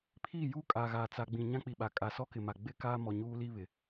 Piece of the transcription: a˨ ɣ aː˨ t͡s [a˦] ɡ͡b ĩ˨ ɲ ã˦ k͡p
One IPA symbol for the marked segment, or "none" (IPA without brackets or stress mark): a˨